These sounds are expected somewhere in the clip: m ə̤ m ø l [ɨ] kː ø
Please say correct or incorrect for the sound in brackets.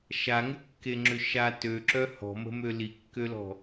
incorrect